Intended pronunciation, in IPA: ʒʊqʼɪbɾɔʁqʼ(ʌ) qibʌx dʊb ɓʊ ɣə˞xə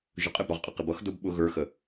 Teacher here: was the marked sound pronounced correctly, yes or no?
yes